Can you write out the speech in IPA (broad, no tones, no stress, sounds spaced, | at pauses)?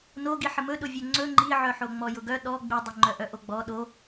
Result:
n o ɡ i ħ ə m ɵ ɗ ʊ vʲ œ ŋ͡ǀ ɵ ŋ͡ǃ i ʕ œ ħ o ŋ͡m ɔ j ʊ ɡ œ ɗ ɔ ɡ͡b i dˤ o ŋ͡ǃ œ ʔ œ ʔ o ɡ͡b ɔ ɗ o